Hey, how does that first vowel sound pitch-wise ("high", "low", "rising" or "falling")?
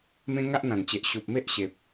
high